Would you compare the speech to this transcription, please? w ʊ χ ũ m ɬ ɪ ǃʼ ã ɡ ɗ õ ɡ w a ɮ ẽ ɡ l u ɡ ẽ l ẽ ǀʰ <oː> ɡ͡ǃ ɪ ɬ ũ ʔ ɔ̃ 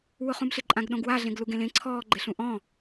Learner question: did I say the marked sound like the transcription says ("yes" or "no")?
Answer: no